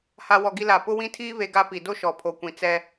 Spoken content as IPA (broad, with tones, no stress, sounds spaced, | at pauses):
h a˦ w ɔ˦ ɡ i˦ l a˦˨ p ʊ˦ w ĩ˦ tʰ iː˦ β e˦ ɡ a˦ p i˨ d o˦ ʃ ɔ˨ pʰ o˨ kʷ ĩ˨ t͡s ɛ˦